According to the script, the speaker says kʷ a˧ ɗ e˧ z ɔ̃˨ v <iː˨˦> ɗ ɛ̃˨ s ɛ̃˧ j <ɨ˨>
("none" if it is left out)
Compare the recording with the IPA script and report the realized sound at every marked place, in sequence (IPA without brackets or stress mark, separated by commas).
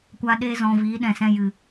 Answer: iː˨˦, ɨ˨